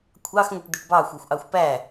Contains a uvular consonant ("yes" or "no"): no